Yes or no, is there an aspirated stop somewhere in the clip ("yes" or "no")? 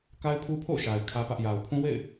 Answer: yes